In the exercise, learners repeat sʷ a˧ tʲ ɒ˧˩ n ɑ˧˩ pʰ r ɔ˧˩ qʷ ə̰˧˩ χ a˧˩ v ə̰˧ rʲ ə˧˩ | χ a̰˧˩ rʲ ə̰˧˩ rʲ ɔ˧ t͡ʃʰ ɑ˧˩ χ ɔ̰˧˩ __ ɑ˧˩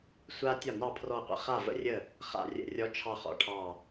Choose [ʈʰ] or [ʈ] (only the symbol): ʈʰ